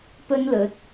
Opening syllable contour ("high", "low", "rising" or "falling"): high